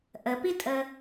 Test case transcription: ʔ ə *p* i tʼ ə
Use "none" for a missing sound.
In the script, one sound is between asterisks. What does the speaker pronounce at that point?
p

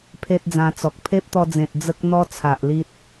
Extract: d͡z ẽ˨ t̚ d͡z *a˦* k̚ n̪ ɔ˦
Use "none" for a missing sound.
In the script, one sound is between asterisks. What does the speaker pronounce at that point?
ə˦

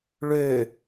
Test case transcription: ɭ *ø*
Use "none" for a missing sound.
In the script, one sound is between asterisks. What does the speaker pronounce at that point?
ø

